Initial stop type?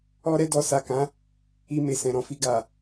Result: plain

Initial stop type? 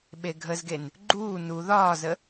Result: implosive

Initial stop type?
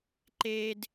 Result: click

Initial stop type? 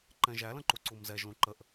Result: click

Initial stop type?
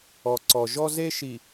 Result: click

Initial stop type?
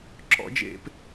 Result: click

